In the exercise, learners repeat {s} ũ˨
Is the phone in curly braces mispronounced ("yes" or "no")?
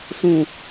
no